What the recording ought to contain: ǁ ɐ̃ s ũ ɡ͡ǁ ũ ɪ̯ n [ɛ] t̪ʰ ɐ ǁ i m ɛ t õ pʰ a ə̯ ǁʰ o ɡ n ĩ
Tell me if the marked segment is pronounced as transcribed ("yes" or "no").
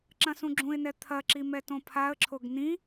yes